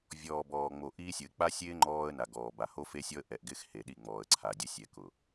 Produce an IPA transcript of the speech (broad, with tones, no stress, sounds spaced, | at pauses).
vʲ ɔː˨ b ɔː˨ ŋ͡m o˨ ʔ i˦ sʲ ʊ˨ ɪ̯ k͡p a˦ sʲ ɪː˦ ŋ͡ǃ ɔː˦ ə̯ n a˨ ɡ ɔː˨ b a˨ h o˦ f e˦ sʲ ɔ˦ ə̯ ʔ ɛ˨ ʔ ɡ ɪː˦ x h e˨ ɗ i˦˨ ŋ͡m ɔː˨ ə̯ ǀʰ a˨ dʲ ʊ˦ sʲ ɛ˨ k ʊ˨